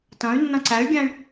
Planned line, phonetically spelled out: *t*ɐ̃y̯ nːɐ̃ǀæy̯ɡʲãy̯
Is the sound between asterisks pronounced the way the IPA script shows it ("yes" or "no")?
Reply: yes